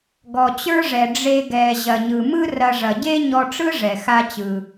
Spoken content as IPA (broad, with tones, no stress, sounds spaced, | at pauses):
ɡ ɔ˩ t͡ɕ ə˞˥ ʐ ɛ˩ ɖ͡ʐ e˧ ɡ ɛ˩ ʑ ɐ˩ ɲ ɯ˩ m ɯ˥ r ɐ˧ ʐ ɐ˩ ɟ e˥ ɲ ɔ˧ ʈ͡ʂ ɯ˥ ʐ ɛ˩ x a˧ t͡ɕ ɯ˩